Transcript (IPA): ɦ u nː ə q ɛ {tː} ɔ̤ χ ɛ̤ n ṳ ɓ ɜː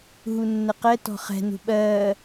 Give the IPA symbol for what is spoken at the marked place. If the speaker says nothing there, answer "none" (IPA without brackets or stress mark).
t